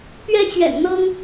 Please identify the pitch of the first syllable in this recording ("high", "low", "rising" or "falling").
high